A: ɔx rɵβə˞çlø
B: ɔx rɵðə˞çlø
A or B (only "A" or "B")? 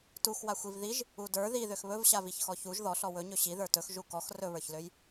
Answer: A